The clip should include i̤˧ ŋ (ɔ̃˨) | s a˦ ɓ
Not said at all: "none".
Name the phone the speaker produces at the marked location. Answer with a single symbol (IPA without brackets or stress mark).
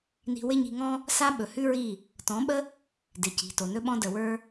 ɔ̃˦